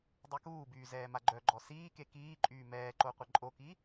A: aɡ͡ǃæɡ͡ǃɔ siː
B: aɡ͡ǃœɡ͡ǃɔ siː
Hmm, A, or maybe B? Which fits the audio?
B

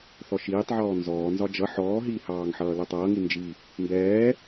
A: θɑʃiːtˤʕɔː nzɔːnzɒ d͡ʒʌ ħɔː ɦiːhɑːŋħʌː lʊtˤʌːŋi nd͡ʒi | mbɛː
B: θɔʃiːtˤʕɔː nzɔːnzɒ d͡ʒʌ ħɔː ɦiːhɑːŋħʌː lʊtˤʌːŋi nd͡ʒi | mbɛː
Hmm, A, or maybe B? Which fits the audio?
B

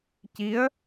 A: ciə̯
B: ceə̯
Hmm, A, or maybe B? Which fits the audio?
A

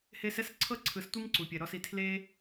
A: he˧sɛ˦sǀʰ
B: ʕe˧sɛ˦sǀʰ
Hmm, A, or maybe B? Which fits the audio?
A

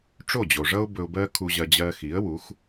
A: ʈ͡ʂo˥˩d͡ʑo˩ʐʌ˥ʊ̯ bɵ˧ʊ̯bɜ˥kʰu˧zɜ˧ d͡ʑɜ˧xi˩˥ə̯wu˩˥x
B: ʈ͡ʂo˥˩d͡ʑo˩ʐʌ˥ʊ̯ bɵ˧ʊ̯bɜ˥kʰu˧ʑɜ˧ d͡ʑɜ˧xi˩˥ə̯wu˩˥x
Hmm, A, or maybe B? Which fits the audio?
B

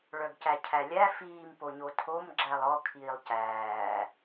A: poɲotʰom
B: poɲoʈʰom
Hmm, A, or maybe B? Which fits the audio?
A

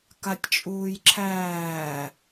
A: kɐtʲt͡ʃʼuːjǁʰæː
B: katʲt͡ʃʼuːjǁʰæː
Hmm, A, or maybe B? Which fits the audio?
B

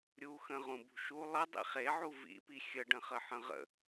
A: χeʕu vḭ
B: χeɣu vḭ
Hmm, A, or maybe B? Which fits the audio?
A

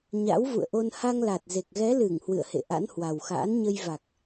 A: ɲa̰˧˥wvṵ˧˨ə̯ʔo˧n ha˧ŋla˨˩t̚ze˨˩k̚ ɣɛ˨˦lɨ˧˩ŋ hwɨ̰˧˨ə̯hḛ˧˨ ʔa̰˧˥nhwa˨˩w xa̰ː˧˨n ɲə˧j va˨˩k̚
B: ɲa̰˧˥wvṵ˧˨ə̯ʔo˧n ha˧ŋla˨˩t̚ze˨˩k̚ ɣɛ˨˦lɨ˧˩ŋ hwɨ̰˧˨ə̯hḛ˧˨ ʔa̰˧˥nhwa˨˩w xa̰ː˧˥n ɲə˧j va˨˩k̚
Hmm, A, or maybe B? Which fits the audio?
B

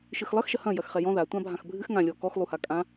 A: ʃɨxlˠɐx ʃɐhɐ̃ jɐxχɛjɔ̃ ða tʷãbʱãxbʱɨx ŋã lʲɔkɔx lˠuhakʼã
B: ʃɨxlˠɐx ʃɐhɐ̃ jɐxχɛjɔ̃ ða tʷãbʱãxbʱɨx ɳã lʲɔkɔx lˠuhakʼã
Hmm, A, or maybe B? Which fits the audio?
A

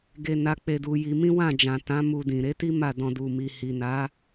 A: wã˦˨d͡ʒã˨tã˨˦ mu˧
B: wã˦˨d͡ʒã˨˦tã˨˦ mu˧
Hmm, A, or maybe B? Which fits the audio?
A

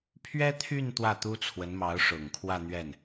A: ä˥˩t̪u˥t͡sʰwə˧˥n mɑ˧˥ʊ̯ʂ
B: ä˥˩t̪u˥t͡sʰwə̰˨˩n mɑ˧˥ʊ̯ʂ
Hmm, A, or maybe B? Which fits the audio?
A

